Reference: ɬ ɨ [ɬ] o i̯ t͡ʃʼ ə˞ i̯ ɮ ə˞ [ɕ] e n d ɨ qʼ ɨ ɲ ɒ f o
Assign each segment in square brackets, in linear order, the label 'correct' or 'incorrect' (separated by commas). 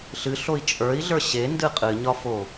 correct, correct